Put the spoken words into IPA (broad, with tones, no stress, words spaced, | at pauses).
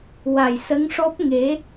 wa˨˩jsə˧˥ŋʂɔ˦˥p̚ ŋe˧˥